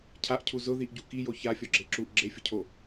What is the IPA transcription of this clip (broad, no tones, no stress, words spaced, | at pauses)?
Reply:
cʰaʔcʰu zʊðiʔɟu kijo çafʲɔɡ͡ǁe ǁuʔ ɡ͡ǁefʲʊcʰo